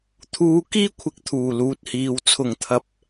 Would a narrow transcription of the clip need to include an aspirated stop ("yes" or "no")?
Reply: yes